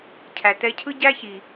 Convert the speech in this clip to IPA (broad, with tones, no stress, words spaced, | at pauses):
cʰæ˨tɛ˧cʰɯ˦ ɟæ˦çi˨